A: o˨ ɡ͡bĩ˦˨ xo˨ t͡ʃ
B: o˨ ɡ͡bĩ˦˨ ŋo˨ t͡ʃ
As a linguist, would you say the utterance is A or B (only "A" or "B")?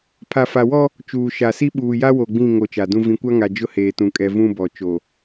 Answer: B